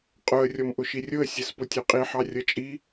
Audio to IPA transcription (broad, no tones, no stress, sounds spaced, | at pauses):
qʼ ʊ ə̯ rʲ ɔ m ʔ ʊ ʃ i rʲ ʊ ə̯ sʲ ɛ s p ʊ tʲ ə˞ qʼ i ħ ɑ rʲ ʌ t͡ʃʼ i